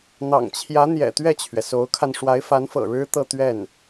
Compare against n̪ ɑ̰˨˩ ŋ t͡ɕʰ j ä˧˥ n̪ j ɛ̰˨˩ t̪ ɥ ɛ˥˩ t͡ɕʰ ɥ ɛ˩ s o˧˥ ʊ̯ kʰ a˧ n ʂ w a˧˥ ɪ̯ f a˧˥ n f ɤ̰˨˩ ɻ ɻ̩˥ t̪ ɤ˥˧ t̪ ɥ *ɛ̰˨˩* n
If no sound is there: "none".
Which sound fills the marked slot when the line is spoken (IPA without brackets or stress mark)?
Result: ɛ˥˩